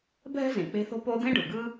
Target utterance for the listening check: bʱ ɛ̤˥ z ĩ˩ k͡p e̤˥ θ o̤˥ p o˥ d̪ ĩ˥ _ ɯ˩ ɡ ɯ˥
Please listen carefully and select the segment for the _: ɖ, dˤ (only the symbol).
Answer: ɖ